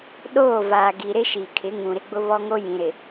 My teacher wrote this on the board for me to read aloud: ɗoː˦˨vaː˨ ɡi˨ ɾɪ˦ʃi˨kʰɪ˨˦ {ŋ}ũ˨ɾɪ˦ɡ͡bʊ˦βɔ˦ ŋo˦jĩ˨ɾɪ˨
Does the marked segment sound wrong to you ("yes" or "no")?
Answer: no